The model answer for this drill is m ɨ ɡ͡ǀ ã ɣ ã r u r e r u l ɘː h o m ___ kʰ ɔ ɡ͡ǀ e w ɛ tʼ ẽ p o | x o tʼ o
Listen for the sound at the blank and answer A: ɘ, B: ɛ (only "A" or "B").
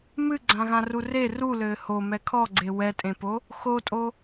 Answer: B